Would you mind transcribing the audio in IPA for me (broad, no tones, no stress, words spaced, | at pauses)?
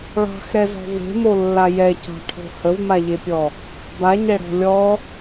ɭɑ̤xɾɛzɔ̤ ve̤molːa jɛcɑ̤ʈʰo̤ həvmaʎepʲɔ | baɲɛɽɔ̤ lʲɔ